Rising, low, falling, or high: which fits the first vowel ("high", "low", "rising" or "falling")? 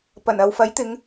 low